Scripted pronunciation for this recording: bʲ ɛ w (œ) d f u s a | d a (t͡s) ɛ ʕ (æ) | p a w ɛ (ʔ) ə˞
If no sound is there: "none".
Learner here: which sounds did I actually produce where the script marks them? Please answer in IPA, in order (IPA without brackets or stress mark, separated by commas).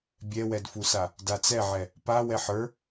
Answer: ɛ, t͡s, ɛ, ħ